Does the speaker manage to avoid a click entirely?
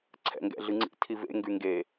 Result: no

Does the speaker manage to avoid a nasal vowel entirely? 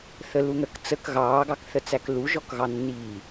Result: yes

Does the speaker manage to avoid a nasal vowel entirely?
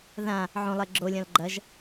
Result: no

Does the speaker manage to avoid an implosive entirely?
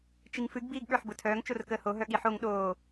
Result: no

